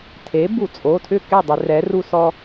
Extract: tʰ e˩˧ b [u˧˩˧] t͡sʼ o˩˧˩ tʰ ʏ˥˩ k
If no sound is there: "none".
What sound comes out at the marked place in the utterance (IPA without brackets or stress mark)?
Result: u˧˩˧